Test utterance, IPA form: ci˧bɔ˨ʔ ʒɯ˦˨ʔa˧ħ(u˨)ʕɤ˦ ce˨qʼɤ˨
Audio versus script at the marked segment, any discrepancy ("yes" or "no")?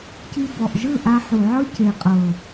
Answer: no